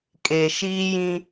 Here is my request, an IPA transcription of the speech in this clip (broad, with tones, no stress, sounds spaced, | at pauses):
kʼ e˨ ʃ iː˦ j ĩ˦